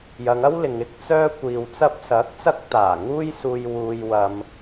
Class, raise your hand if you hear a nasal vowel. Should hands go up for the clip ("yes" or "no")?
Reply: no